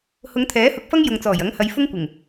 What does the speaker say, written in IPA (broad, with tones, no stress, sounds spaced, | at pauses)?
h ʊ˨˧ ŋ t̪ʰ ɛː˨˥ h ʊ˨˥ k̚ f ɐ˥ ŋ j ʊ˨ ŋ t͡s ɔː˨˩ j ɐ˨˥ ŋ h ɐ˨˧ j f ʊ˥ ŋ kʷ ɪ˨˩ ŋ